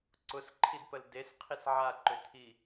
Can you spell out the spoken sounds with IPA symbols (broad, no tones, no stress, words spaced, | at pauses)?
ǀʊsǃʰidpəl desqʰis ʕaǃʏtʰi